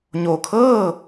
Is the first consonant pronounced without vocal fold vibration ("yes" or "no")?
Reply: no